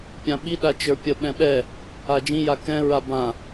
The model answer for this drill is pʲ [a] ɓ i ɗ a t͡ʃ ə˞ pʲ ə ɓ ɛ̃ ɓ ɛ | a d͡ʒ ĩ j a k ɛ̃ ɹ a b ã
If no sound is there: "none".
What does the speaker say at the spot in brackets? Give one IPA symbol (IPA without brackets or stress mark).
ã